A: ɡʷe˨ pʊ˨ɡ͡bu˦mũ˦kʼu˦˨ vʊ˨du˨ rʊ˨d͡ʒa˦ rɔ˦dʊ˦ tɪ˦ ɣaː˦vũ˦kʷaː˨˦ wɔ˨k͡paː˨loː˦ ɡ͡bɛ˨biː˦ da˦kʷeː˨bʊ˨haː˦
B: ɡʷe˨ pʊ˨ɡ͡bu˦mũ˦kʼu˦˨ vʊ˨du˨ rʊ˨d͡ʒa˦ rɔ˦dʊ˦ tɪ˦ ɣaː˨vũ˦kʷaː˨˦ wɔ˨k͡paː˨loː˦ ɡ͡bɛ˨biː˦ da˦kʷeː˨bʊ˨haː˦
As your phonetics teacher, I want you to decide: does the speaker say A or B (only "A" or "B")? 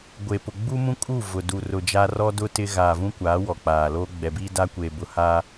B